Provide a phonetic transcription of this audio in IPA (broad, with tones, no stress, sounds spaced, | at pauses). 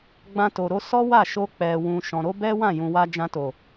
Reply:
ɡ͡b ã˧ t o˨ ɾ o˧ s ɔ˦ w a˦˨ ʃ o˧ k͡p ɛ˨ w ũ˨ ʃ ɔ̃˨ ɾ o˨˦ b ɛ˦ w ã˦˨ j ũ˨ w a˧ d͡ʒ ã˧ t o˨